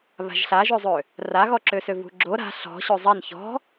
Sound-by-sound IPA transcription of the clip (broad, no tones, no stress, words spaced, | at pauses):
βa̤ʒɬaʒøzˤø | raɣɔǁøsø vṳɡ͡ǁo ɾa̤ ɬɔ̤ ɕøzˤɛn çɔ̤